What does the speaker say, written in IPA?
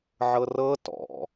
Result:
ʕ ɤ r ɤ t ɔ̰

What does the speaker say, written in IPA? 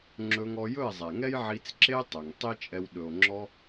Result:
ŋ͡ǁ ɵ˧ ŋ ɔ˧ j ɵ˦˨ e̯ zˤ ɛ˨ ŋ ɛ˦ j ʕ i˧ t͡s ǁ e˦ tˤ ɵ˨ ŋ tˤ i˦ t͡ʃʼ ɛ˧ w ɗ ɵ˨ o̯ ŋ͡ǁ ɔ˧

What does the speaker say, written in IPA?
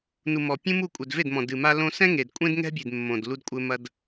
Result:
n u˨ m ɔ˨ pʲ ũ˦ m u˦˨ kʷʼ ɛ˨ d v e˦˨ d m ɔ̃˨ d ɨ˨ m a˦ l õ˦ s ɛ̃˦ ŋ e˨ d kʷʼ ẽ˦ d ŋ ɛ̤˦ bʲ e˨ d mː õ˨ d l u˧ d kʷʼ ɘ˧ m ɐ˧ d

